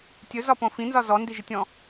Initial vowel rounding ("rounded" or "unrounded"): rounded